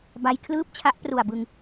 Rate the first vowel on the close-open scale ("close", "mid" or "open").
open